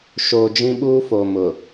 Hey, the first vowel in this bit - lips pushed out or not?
yes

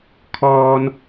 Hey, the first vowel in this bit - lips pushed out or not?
yes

